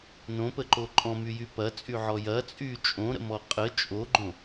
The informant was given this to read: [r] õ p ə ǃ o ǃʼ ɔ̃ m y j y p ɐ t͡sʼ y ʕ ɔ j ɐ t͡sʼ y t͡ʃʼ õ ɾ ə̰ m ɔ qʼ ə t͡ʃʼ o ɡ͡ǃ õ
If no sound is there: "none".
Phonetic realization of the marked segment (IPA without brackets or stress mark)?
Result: n